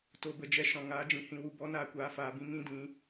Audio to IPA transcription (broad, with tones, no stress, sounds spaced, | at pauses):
t o˨ b ə˨ d͡ʒ ɛ˨ ʃ ɔ̃˨ ŋ aː˨˦ d͡ʒ ĩ˨ h ĩ˨ w u˨ b ɔ˨˦ n aː˨ kʷ aː˨ f aː˨ b ĩ˧ ŋ ĩ˦ d ĩ˨˦